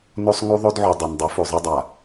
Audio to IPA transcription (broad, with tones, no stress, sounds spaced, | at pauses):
n o˦ sˤ ŋ u˦ ðˤ o˦ d ʕ u˨ dˤ ɐ˨ n dˤ ʉ˨˦ f o˨ zˤ ɐ˦ dˤ a˨